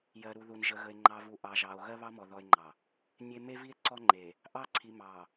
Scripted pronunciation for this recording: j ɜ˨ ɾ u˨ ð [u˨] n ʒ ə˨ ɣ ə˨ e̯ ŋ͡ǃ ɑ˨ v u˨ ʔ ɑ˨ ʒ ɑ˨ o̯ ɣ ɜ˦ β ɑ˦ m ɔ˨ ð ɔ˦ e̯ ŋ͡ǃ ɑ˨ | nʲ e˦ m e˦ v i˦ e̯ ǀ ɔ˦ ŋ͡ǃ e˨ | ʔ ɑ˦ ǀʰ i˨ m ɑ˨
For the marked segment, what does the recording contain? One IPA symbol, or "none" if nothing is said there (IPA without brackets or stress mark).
u˨